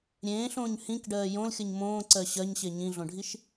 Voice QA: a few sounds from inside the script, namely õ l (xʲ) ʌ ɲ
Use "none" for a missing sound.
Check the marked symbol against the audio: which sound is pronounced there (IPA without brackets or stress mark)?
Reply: xʲ